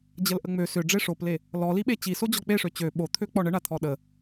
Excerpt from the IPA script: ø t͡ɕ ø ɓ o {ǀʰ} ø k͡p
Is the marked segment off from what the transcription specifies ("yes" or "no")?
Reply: yes